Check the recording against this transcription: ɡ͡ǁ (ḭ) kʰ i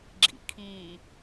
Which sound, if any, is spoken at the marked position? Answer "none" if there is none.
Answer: ḭ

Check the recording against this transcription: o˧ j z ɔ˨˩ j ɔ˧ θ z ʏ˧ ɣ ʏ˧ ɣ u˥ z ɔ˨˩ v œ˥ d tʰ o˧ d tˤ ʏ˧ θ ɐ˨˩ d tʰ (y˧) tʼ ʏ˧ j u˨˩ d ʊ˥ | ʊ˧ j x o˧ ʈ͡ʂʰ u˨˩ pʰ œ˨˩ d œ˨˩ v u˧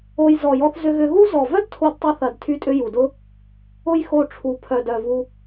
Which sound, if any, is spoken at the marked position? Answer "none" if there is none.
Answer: y˧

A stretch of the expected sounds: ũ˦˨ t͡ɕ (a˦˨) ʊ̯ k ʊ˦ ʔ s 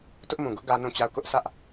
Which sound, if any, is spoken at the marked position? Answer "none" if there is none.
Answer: a˦˨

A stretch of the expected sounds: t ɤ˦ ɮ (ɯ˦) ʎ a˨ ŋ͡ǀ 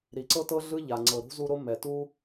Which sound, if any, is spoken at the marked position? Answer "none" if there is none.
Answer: ɯ˦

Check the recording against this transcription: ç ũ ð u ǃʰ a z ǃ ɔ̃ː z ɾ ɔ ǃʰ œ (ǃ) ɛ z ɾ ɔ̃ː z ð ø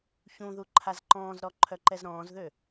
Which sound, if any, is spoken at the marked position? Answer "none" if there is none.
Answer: ǃ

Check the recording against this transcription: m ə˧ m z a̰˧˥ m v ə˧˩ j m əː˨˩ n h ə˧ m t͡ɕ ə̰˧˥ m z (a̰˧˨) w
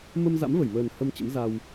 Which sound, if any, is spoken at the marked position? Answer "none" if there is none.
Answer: a˧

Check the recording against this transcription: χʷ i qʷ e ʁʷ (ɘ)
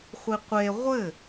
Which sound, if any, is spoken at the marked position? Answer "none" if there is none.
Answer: ɘ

